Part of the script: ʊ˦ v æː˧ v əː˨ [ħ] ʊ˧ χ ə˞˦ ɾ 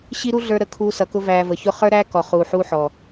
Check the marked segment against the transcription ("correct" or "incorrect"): incorrect